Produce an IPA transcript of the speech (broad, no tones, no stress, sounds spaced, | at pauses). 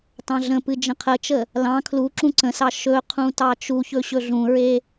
t ɑ̃ ɮ ə̃ p ɨ d͡ʒ ə̃ qʰ ə t͡ʃ ə | l ɑ̃ kʰ l u ǁ ũ ǀ ə̃ s ɑ ʃ ɵ qʰ ũ t ɑ t͡ʃ u ç ɵ ɕ ɵ ɮ ũ ɹ e